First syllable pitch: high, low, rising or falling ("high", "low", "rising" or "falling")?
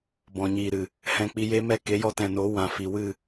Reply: low